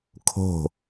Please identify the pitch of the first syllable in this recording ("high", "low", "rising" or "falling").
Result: falling